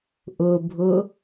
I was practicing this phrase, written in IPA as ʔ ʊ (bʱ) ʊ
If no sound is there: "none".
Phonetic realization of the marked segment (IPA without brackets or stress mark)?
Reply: bʱ